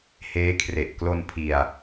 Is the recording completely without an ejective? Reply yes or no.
yes